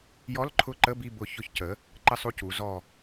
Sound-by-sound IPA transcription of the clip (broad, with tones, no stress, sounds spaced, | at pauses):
j ɔ˧˥˧ l ǃʰ ʊ˦˨ ǃ ə˧˥˧ b i˦˨ b ʊ˧˩˧ ç ʊ˧˩˧ ç c ə˩˥ | ǃ ə˦˨ sˤ u˦˨ c u˩˧ z ɔ˦˨